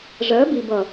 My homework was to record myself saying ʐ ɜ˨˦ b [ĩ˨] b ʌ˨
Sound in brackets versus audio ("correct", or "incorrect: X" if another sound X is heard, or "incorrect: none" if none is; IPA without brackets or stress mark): incorrect: i˨